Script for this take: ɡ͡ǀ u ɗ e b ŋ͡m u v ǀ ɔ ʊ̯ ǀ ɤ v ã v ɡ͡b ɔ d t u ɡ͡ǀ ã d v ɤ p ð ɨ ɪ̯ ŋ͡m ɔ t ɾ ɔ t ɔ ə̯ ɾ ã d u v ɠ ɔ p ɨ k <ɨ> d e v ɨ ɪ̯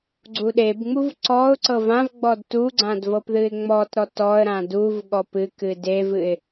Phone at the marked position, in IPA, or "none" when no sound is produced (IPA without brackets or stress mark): ɨ